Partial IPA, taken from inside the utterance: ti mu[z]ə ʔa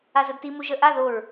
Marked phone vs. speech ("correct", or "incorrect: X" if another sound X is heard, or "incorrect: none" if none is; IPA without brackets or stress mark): incorrect: ʒ